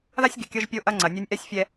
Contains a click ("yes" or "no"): yes